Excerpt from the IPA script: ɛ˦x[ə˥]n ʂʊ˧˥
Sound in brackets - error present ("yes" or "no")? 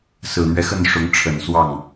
yes